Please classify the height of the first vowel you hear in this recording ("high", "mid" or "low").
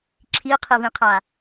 high